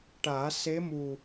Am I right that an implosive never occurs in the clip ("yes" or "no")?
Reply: yes